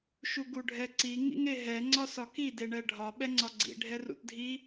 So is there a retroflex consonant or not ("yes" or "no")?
yes